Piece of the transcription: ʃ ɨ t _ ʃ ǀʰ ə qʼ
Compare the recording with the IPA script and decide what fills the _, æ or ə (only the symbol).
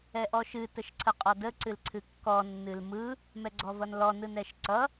ə